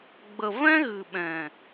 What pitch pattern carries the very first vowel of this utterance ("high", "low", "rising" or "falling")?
low